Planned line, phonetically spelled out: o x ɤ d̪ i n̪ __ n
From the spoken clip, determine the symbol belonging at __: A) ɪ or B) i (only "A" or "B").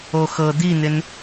A